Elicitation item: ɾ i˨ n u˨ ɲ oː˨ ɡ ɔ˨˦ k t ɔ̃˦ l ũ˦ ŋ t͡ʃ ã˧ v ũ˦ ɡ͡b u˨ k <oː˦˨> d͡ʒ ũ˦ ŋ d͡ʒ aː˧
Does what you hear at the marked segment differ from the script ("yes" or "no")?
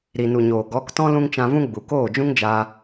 no